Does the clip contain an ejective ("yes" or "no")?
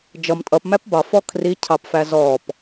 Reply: yes